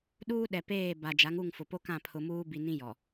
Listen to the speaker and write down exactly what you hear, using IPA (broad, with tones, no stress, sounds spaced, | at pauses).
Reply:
ɗ uː˦ ɗ ɛ˨ p eː˦˨ b a˨ d͡ʒ a˨˦ ŋ u˦˨ ŋ f ʊ˨ p o˦ k ã˦˨ pʰ ʊ˨ m uː˦ b i˨ n ĩ˦ j ɔ˨